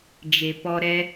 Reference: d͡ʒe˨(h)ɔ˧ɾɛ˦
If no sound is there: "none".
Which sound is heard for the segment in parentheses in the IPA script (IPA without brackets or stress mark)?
p